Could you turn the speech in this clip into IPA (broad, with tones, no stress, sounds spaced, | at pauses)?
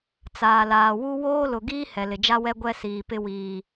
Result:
t͡s aː˨ l aː˨ w u˦ w oː˦ l ʊ˨ ɡ iː˦ h ɛ˨ l ɪ˨ d͡ʒ a˦ w ɛ˦ ɡʷ ɛ˦ s iː˨ p ɪ˦ w iː˨